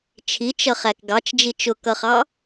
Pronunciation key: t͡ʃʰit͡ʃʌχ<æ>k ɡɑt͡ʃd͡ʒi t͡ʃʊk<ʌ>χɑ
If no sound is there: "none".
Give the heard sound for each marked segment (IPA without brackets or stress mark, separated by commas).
æ, ʌ